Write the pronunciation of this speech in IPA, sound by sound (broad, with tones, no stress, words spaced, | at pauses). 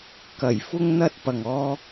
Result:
kɐ˨˩jfʊ˧ŋn̪ɐ˧t̚ pɐ˧ŋɔː˥